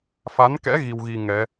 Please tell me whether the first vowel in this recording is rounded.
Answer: no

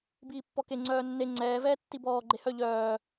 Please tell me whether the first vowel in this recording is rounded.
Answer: no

